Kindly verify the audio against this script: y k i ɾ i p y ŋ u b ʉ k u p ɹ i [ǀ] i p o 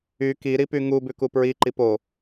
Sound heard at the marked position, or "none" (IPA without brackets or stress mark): ǃ